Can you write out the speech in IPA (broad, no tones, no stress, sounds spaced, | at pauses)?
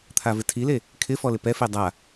t̪ʰ a v ɪ tʰ i l e | kʰ ɪ f ɔ l ɪ p ɛ f e dˤ a